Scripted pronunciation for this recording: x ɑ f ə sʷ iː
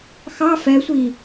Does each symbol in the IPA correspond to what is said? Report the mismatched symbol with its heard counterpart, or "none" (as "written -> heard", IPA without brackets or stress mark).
ə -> ɛ